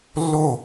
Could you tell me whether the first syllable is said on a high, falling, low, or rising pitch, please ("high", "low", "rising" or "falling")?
falling